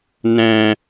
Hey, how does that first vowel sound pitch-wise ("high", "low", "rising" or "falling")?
high